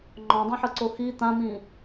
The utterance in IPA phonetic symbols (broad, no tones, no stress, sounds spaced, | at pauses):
ŋ͡ǃ ɔ̃ dˤ ĩ ħ ɤ ǀ o x i t̪ ã m ĩ